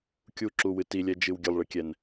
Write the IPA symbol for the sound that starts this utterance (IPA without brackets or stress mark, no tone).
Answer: kʲ